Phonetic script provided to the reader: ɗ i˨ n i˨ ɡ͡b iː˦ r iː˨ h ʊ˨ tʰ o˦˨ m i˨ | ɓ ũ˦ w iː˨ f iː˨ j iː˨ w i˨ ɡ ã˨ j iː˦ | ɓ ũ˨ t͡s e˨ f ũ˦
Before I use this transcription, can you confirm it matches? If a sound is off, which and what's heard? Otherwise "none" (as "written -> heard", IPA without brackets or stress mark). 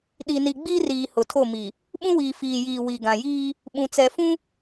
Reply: e˨ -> ɛ˨